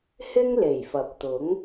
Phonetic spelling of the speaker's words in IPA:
h ɪ˥ ŋ l e˨˩ j f ɐ˨˥ p̚ t̪ ʊ˨˥ ŋ

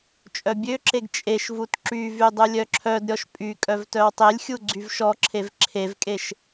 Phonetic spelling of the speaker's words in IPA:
t͡ʃʼ œ bʲ ø ǁ e ɡ t͡ʃʼ e ʃ v u t ǁ y v y dˤ u lʲ œ ǁʰ œ d ɾʲ ɔ ʃ pʼ y kʼ œ v t œ w tˤ e lʲ xʲ u ɡ͡ǀ y v ʃ ɔ ǁʰ e v ǁʰ e v kʼ e ʃ

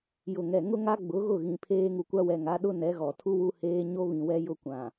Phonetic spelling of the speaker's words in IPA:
j ʊ˨ ŋ ɛ˨ ŋ ʊ˦ ŋ a˦ ɡ͡b ʊ˨˦ ɣ ʊ˦˨ ɣ ĩ˨ pʰ eː˦ ŋ u˨ kʷ a˦ w ɛ˨ ŋ a˨˦ ɗ ʊ˦ n ɛ˨˦ ɣ ɔ˨ tʰ u˦ w u˦ h eː˦ ɲ o˦ β ĩ˨ w ɛ˦ j ʊ˦ kʷ ã˨

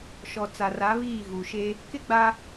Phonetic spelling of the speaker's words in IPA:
ʃ ɔ˨ t͡s a˨ r a˨˦ β iː˦˨ ɣ u˨ ʃ e˦ | k ɪ˦ ɡ͡b a˦

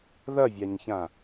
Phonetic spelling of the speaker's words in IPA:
ð ɐ vʲ a ɲ ç ã

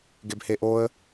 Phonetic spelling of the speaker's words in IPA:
ɡ e b h e ʔ o ə̯

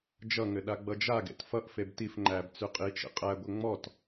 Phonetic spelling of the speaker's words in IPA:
d͡ʒ ʌ ŋ ɘ ɗ a ɡ͡b ʌ d͡ʒ a ɡ ḛ t f ʌ ʔ f e b t i f ŋ͡ǃ æ b t͡s ʉ qʼ i t͡ʃ ḛ qʼ æ ɡʷ ɘ ŋ͡m ɔ t

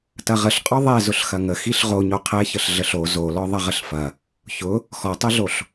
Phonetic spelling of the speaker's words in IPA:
t ɐ ʁ ə ɬ qʼ ɔ ðˤ ɛ z ʊ ɬ x ɐ ŋ ə x i ɬ ʁ o ɲ o qʰ ɛ ç ə ɬ ɮ ə ɬ o z o l ɔ ðˤ ɐ ʁ ə ɬ f ɐ | ç ʊ | x ɔ tˤ ɛ ɮ o ɬ

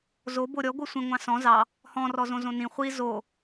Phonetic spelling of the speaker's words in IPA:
z o b o ɾʲ ɔ ɡʷ ɯ sʷ ĩ ŋʷ ɑ̃ s ɔ̃ z ɑ | h ɔ̃ r ɔ z õ z õ n ĩ χʷ i z o

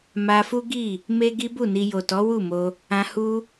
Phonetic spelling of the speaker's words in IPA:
m a˧ f u˦ ɡ i˦˨ | m e˦ ɡ i˦ b u˦˨ n i˧ j o˨ t ɔ˨˦ w u˦˨ m o˧ | ã˧ h u˧

